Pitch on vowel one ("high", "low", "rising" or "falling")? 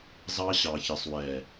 high